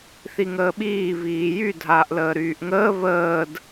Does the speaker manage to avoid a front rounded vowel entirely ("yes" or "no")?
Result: no